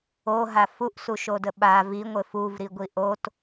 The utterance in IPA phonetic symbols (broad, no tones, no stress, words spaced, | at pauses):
oɦa fuʔsuʃodə ɓa viŋʷɘ fuvɾi ɡʷiʔot